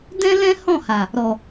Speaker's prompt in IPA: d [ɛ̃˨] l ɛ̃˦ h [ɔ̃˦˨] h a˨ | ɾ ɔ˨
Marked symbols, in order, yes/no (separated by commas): no, yes